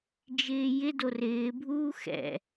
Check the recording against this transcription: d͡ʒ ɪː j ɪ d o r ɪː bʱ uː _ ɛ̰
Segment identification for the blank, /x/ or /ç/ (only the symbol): x